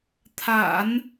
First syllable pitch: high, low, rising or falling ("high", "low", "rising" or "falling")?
low